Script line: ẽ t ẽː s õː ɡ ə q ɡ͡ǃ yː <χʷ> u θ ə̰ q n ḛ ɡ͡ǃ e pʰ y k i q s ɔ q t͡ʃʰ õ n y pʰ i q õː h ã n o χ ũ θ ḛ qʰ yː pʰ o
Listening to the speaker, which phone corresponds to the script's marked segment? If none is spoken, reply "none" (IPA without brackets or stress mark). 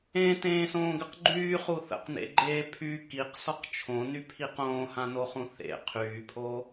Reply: χ